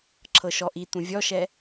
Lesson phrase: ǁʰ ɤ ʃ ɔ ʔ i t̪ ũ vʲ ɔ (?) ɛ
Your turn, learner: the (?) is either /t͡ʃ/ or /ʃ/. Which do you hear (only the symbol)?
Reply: ʃ